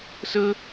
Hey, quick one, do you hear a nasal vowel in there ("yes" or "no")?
no